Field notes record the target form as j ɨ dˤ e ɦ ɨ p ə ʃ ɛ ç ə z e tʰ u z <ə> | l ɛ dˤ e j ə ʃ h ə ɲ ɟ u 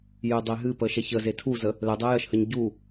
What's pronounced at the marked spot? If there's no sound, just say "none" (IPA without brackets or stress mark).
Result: ə